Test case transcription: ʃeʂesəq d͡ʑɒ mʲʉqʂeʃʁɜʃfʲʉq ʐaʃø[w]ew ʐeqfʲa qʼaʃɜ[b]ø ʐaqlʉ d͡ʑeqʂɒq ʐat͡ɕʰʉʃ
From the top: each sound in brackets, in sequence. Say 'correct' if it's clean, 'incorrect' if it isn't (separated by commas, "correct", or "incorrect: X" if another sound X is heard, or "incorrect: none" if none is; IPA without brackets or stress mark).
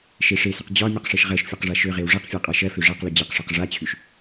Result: incorrect: ʁ, incorrect: f